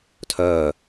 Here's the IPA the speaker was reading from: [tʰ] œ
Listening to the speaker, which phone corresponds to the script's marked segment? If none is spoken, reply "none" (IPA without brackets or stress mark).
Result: tʰ